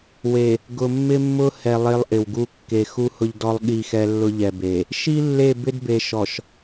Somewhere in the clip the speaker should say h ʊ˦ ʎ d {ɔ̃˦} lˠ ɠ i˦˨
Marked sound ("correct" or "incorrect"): incorrect